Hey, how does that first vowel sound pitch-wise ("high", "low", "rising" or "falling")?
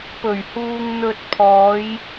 low